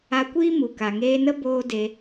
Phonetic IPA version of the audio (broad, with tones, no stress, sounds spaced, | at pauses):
a˧ kʷ iː˦ m u˨ k a˨ ŋ eː˧ n ə˦ b oː˦ d e˧